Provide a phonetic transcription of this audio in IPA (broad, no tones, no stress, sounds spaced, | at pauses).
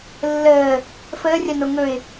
lː əː | f əː rʲ ɐ n o ŋ ɵ ɪ̯